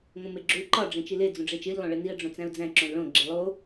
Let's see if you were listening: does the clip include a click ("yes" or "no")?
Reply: yes